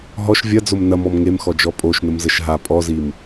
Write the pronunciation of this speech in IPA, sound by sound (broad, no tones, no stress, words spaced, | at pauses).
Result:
ɦɔʃ vʲɐd͡zom nɐmɔm ŋemxɔd͡ʒɔ pʼoʃnəmzəʃ ɦa pʼɔzim